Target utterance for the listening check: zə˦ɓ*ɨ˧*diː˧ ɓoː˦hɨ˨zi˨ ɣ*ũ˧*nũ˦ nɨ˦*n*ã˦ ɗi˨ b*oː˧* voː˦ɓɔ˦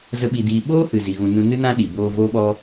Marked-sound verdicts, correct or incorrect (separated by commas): incorrect, correct, correct, correct